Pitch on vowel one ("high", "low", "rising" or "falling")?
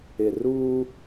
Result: low